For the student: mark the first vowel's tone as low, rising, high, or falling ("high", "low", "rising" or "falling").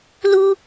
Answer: high